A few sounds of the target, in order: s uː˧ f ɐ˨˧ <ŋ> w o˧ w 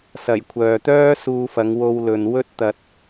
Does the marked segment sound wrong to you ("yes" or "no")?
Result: no